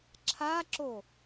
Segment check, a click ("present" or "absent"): present